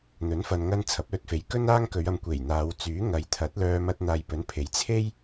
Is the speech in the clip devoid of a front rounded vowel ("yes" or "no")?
no